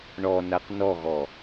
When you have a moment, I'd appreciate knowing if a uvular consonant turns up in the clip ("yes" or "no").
yes